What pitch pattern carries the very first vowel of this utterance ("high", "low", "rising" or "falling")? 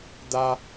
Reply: high